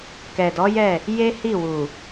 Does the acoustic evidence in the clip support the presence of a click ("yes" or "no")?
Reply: no